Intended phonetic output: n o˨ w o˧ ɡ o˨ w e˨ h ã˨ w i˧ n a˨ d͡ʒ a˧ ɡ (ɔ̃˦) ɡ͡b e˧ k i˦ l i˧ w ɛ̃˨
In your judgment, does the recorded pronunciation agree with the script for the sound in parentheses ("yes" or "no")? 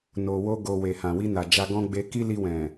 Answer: yes